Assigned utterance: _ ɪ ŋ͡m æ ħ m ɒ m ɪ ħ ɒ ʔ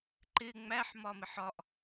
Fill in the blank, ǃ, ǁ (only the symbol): ǃ